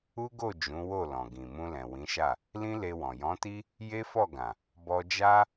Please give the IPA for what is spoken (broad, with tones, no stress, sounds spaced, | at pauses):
u˦ ɡ o˦˨ d͡ʒ ũ˨˦ w o˦˨ l ɔ̃˨ ɡ ĩ˨ m ũ˧ l ɛ̃˨ w ĩ˨˦ ʃ a˦˨ | l ĩ˦ l e˧ w ɔ̃˨ j ɔ̃˨˦ t i˦ | j e˦ f ɔ˦˨ ɡ ã˨ | b ɔ˧ d͡ʒ a˦